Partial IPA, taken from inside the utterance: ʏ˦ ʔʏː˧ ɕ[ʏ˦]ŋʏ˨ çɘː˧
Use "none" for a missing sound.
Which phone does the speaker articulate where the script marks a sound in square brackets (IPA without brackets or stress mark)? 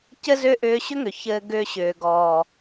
ʏ˦